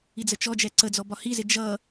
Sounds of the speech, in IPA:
id͡zət͡ʃɔd͡ʒɛ ǀəd͡zɔ bɒhizɪ d͡ʒʌ

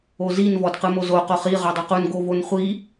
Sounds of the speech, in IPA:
ozin vɔdqɯmozo qoχi ʁɔdˤoqun ɡovonχʷi

